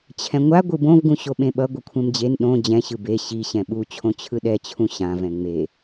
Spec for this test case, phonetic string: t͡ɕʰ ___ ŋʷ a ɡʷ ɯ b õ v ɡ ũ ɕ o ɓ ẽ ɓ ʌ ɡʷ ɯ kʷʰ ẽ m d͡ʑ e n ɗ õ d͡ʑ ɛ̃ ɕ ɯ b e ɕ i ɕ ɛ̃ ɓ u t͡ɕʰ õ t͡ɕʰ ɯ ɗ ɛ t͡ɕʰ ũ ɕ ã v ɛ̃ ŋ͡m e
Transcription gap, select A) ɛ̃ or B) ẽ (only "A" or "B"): A